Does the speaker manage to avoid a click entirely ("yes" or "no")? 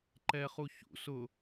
no